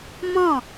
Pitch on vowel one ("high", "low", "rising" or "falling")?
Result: falling